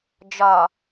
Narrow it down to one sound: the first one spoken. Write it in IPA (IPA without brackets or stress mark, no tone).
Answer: d͡ʒ